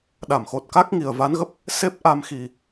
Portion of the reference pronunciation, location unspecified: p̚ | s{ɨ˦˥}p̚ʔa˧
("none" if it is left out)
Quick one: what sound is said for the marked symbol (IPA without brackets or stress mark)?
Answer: e˦˥